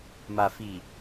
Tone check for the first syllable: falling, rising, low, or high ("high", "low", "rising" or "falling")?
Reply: low